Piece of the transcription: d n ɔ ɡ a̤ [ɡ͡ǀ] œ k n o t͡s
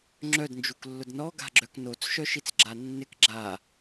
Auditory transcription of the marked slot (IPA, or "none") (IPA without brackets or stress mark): ɡ͡ǁ